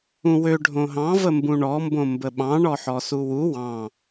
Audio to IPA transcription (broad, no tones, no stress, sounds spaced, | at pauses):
ũ w ø ɖʱ õ ɦ ɑ̃ v ə m b ũ ɳ ɔ m b õ m b ə ɓ ɑ̃ ɳ ɔ ħ ɔ s u w u w ɑ̃